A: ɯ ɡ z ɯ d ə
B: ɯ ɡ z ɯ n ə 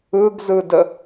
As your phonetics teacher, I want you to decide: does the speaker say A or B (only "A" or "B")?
A